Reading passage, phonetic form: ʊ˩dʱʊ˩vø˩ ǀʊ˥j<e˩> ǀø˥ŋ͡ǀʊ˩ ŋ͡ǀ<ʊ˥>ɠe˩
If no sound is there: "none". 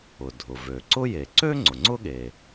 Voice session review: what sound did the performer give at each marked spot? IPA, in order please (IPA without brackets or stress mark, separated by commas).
e˩, ʊ˥